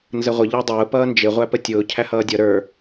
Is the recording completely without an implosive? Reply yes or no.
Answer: yes